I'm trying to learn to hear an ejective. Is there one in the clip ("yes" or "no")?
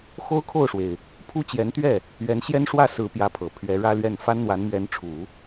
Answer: no